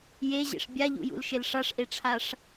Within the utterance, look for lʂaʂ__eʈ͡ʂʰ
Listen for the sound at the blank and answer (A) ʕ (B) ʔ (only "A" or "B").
B